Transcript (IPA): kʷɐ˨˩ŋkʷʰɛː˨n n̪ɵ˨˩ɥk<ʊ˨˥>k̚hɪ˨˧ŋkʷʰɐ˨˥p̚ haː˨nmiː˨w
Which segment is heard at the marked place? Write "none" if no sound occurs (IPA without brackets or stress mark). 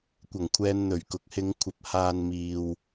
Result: ʊ˨˥